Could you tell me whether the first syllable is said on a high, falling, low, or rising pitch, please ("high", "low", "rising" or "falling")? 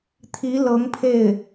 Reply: rising